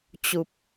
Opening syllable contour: low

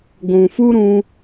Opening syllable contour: low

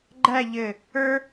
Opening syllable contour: falling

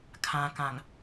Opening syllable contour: low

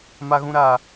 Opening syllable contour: high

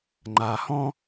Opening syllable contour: low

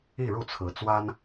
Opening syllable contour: falling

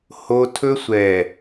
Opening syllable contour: high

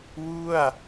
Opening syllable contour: falling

